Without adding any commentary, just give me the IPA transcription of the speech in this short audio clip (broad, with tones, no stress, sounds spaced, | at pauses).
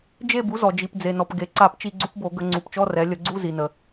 d͡ʒ e˦˨ b u˩˥ z ɔ˩ d͡ʒ i˩ p d͡z e˩ n ɔ˩ p ɡ e˩ ǀ a˧˩˧ p t͡ʃ i˧˩˧ ɡ͡ǀ u˩˥ p b o˧˩˧ ɡ ə˧˩˧ ŋ͡ǀ u˩˧ p t͡ʃ ɔ˧˥˧ r ɛ˩˧ lʲ ə˧˩˧ ɡ͡ǀ u˧˥˧ z i˩ n ə˩